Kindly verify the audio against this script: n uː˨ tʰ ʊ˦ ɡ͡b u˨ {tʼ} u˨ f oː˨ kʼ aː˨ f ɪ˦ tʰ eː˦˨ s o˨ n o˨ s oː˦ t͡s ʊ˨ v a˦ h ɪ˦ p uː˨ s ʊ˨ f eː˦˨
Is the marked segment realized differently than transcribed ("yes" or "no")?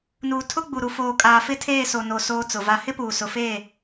yes